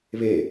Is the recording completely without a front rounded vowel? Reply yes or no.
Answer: yes